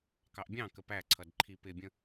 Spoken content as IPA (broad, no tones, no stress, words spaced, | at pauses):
kɑʔbʲɑ̃kə pæǀʰʌd ǃʰip ɪbʲə̃